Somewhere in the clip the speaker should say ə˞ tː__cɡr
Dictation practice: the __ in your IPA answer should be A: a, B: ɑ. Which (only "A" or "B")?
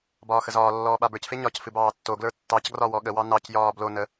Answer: B